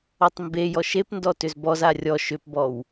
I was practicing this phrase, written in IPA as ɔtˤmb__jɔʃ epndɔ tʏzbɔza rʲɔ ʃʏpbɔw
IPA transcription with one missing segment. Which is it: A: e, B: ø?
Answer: A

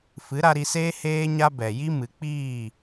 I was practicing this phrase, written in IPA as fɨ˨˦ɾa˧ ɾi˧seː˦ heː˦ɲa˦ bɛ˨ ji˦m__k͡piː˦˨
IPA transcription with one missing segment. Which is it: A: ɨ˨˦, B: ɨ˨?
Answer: A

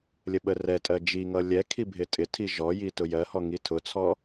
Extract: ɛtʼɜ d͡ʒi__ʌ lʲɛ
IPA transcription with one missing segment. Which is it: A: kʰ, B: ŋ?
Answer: B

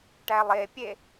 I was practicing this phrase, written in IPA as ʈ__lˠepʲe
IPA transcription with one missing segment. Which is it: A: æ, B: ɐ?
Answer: A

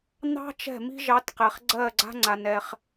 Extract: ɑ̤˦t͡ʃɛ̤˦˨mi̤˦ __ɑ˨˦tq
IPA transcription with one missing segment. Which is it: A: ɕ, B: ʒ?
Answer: B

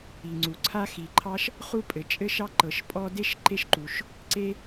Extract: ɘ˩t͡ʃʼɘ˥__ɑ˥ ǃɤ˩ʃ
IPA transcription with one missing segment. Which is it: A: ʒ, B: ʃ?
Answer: B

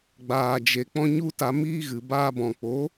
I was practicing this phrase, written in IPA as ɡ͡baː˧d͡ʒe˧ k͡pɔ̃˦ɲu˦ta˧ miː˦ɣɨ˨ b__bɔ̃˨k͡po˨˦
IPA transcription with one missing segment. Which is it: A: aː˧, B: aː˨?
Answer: A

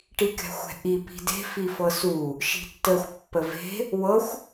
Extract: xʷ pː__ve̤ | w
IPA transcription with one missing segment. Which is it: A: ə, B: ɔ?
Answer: A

